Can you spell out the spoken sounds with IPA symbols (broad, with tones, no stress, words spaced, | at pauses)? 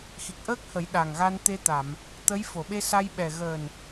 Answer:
xi˨˩k̚ʔəː˦˥k̚hə˨˩˦j ɗa˨˩ŋɣa˧nt̪e˧t̪a˨˩˨m | t̪ə˧˥j fo˨˩˨ɓe˧sa˧jɓɛ˨˩ ɣəː˨˩n